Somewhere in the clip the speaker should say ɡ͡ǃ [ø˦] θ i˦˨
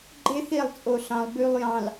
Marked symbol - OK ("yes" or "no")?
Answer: no